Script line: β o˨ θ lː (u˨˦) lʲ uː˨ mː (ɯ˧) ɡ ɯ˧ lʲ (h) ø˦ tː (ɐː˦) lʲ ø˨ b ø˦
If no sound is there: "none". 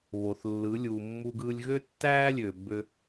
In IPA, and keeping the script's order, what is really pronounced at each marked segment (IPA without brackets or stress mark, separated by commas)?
ɯ˨˦, u˧, ɣ, æː˦